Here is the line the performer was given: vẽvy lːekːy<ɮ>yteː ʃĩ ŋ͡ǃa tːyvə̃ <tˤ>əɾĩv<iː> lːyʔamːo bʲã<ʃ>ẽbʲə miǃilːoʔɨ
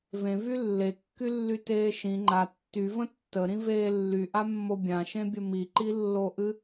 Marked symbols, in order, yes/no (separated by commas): no, no, no, yes